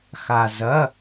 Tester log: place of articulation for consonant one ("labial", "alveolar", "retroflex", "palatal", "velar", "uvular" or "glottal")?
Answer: velar